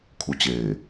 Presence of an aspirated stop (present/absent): present